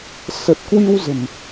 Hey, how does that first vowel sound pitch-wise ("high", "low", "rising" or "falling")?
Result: low